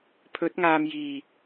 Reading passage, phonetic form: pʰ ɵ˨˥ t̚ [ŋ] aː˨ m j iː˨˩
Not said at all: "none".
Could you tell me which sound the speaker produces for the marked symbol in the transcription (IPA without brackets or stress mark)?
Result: ŋ